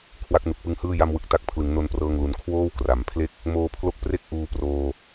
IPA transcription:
kʰ w a˦˥ k̚ n u˨˩ k̚ p ɯ˦˥ ŋ h ɯː˥˩ j a˥˩ m w ɯ˦˥ k̚ t a˥˩ k̚ pʰ l ɯ˩˦ ŋ n o˧ n p r ɤː˧ ŋ l u˧ n kʰ w oː˥˩ w k r a˨˩ m pʰ l e˥˩ k̚ | m oː˧ pʰ l o˥˩ k̚ p r e˥˩ k̚ ʔ uː˧ p r oː˧

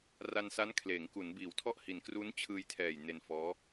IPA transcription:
r a˧ n s a˦˥ n kʰ l eː˩˦ ŋ k u˩˦ n b iː˩˦ w tʰ ɔ˥˩ ʔ h i˨˩ n k r u˦˥ n t͡ɕʰ ɯː˧ j tʰ ɛː˨˩ j n e˧ n f ɔː˦˥

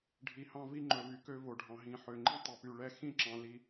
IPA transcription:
ɖʱ i˨ h ɑ̃˦ v i˦ ŋ͡ǃ ɵ˨ v y˨ k ø˦ v o˨ ɖʱ ɑ̃˨ ɦ ĩ˨ ħ ø˨ ŋ͡ǃ ĩ˦ tˤ ɵ˨ p y˨ ɭ ɛ˦ x ĩ˦ ǁ ɑ̃˨ l i˨

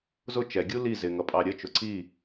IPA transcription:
z ʊ t͡ʃ ɛ ɡʲ u l i z ɪ ŋ ʌ pʼ ɑ ɾʲ ə t͡ʃ ʊ ǀ i

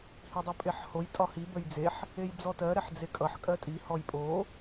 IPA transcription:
h i dˤ o pʼ e ħ h o j tʼ ɒ h i b ə j d͡z e ħ | e j d͡z ɔ t ɜ ɾ ɛ ħ d͡z e kʼ ʌ ħ kʼ ɜ tʼ i h ɔ j pʼ o

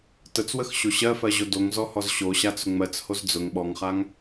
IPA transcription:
t ə t͡s w ə x ɕ o ɕ ɜ f ɜ ʑ o d o ŋ z ɔ h ɔ z ɕ o ɕ a t͡s ʊ ŋ͡m ɜ t͡s h o z d͡z ʊ ŋ ɓ ɔ ŋ χ a ŋ

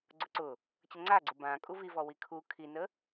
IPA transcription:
ɡ͡ǀ ʊ ǀ ʊ | t͡ɕ ə ŋ͡ǀ a ɡ͡ǀ ʊ b ã kʼ u v i v ɔ w i kʰ u kʰ i n ə

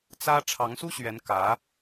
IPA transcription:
t͡s ä˥ ʈ͡ʂʰ ɑ˧˥ ŋ s u˥ ɕ ɥ ɛ˧˥ n k ä˧˥

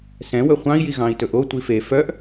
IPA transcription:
s ɛ̃ w ɵ χʷ ɑ̃ i̯ j i ɣ ɑ̃ i̯ t ɵ ʔ o tʷ i f e f œ ʔ

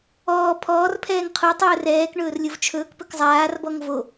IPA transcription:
ɔː pʰ ɔː r pʰ ɛː ŋ qʰ o tˤ ɵː r ɛː k ɳ ɵː r lʲ o v t͡ʃʰ ɵː k p ɵ k zˤ aː r b ɔ ŋ v o

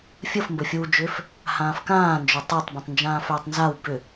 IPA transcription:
fʲ ə f m b ɘ fʲ uː d͡ʒ ʏː f | h ãː f k ãː n d͡ʒ ʏ tˤ u tˤ b ũ tˤ n d͡ʒ ãː f ʏː tˤ n z a w b ʏ

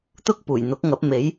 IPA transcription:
t̪ ʊ˥ k̚ p uː˨˩ j n̪ ʊ˨˥ k̚ ŋ ɐ˨˥ p̚ m e˨˥ j

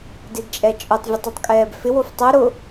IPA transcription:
d ɪ d t͡ʃʼ ɛ t͡ʃʼ ʊ tˤ vʲ ɨ tˤ ɨ tˤ kʼ ɛː b f ɪ w o f tˤ ʊ ɾ ʊ

